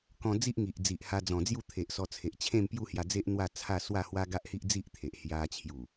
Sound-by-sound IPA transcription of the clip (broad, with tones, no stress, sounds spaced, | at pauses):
k ɔ̃˧ d͡z i˦ ʔ ŋ i˨ ʔ d͡z i˨ ʔ h a˧ d͡z ɔ̃˨˩ d͡z j u˥˧ t̪ʰ e˨ ʔ s ɔ˧ t͡sʰ e˨ ʔ t͡ɕʰ ẽ˥˧ m p j u˥˧ h j a˧ d͡z e˦ ʔ n̪ w a˥˧ t͡sʰ a˥˧ s w a˥˧ h w a˦ ɡ a˦ ʔ h i˦ ʔ d͡z i˦ ʔ t̪ʰ e˨ ʔ h j a˧ t͡ɕʰ j u˨˩